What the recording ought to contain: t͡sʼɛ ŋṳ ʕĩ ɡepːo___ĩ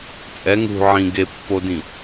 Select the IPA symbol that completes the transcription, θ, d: d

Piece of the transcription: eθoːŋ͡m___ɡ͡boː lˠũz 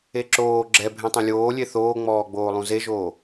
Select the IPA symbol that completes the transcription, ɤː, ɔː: ɔː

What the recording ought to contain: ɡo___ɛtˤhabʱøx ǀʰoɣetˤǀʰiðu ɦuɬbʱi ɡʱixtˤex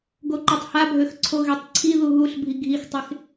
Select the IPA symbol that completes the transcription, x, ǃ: ǃ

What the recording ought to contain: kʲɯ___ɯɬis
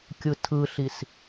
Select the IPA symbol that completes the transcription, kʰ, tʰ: tʰ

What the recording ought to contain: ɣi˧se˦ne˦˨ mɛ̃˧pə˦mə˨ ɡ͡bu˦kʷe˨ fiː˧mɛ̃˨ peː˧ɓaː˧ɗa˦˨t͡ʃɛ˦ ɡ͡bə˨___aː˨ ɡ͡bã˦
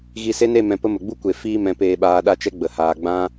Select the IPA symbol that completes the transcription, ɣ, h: h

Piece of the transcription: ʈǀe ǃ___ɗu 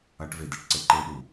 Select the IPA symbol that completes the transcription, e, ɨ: e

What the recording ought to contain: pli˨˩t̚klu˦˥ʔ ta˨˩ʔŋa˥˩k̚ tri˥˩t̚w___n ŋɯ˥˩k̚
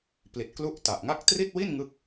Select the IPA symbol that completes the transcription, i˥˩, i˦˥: i˥˩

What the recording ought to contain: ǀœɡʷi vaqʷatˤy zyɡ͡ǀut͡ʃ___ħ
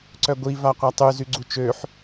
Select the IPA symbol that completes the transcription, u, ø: ø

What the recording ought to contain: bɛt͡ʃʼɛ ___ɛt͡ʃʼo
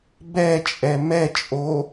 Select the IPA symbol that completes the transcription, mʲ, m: m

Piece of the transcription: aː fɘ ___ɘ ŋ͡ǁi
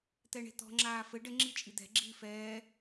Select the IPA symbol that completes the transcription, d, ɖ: ɖ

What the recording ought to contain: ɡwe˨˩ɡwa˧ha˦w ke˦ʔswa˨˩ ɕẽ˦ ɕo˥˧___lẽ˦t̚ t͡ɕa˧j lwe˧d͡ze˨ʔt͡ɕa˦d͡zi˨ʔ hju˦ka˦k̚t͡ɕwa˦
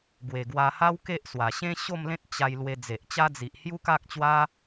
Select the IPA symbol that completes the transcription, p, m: m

